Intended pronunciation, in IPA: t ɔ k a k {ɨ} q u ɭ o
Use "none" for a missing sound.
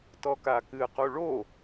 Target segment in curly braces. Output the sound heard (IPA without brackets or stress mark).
ɨ